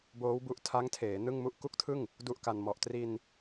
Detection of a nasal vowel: absent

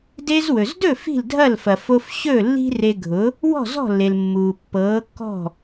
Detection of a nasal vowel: absent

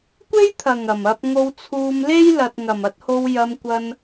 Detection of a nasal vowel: absent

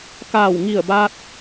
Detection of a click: absent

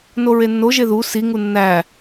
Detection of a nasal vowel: absent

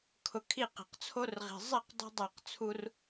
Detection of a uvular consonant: present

